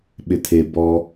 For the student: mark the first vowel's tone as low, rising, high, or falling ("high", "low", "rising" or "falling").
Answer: low